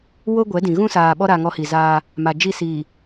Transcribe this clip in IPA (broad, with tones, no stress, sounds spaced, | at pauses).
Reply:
w o˦ ɡʷ ɛ˨˦ d ĩ˨ ɣ ũ˦ s aː˨ ɓ ɔ˦ ɾ a˦ ŋ ɔ˦ h i˨ z aː˦ | m a˨ d͡ʒ i˦˨ s iː˨